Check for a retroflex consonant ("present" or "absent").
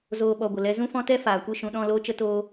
absent